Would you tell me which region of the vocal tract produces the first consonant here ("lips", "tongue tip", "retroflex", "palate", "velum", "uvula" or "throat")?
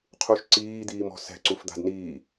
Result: uvula